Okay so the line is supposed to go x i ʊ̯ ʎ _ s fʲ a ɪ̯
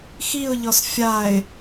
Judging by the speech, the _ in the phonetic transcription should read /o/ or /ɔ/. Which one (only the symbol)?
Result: ɔ